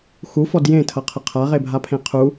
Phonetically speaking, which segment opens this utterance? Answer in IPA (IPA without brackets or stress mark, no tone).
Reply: x